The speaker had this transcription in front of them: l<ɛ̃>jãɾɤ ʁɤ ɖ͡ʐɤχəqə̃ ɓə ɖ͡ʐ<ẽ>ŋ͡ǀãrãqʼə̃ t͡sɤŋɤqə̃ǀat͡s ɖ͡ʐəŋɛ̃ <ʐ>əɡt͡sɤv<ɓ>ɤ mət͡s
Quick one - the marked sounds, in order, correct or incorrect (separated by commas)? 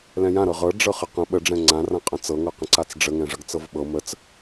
correct, incorrect, correct, correct